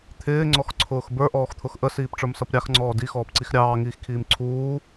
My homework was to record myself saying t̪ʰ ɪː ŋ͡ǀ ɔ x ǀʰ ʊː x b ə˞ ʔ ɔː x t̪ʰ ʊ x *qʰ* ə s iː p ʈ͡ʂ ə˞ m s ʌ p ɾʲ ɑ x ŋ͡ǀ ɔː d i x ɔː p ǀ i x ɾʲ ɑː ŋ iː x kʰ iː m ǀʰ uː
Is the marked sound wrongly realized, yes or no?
yes